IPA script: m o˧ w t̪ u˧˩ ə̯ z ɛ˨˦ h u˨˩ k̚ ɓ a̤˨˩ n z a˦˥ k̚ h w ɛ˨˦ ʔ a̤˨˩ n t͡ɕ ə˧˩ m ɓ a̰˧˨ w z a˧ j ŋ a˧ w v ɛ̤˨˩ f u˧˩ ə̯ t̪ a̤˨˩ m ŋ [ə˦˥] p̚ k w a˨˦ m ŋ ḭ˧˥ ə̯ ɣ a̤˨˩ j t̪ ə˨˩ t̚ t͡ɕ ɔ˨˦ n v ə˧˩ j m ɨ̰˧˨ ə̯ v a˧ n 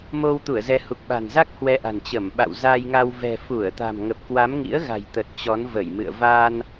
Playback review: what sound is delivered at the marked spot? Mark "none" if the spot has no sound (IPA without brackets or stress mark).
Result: ə˨˩